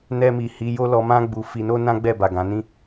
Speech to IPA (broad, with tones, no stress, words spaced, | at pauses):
nɛ˧mi˨ hi˨˦jo˦lɔ˧mã˦ ɡ͡bu˧ fi˧no˦ nã˦ɡ͡bɛ˦˨ba˨ ɡã˨˦ nĩ˦